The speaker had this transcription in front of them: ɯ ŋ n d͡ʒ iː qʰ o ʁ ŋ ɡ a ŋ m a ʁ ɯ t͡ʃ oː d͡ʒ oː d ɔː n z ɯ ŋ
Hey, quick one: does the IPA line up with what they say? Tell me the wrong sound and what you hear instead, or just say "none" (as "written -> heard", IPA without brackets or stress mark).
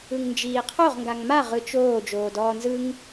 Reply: none